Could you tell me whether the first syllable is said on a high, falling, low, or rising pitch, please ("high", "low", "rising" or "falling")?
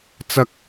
high